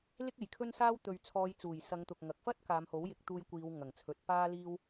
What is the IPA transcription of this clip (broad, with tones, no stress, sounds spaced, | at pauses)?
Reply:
l ɪ˥ k̚ e˨˩ j kʰ ɵ˥ n s aː˥ w t̪ ɵ˨ ɥ t͡sʰ ɔː˨˧ j t͡s uː˨˩ j s ɐ˨˧ ŋ t̪ ʊ˨ k̚ ŋ ɐ˨ k̚ f ɐ˥ t̚ k aː˨˧ m h o˨˥ w j ɪ˨˥ k̚ t̪ uː˧ j kʷ iː˨˧ w ŋ ɐ˨˩ ŋ t͡sʰ ɵ˨˥ t̚ p aː˥ l iː˥ w